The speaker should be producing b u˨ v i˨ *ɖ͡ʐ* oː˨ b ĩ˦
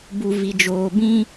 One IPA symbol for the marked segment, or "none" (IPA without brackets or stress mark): d͡ʒ